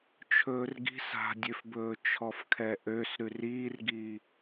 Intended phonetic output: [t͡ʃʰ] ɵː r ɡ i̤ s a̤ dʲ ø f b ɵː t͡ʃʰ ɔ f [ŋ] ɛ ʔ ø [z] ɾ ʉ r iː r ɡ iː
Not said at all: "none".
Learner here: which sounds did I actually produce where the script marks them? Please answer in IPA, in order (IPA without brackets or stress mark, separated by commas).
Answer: t͡ʃʰ, kʰ, s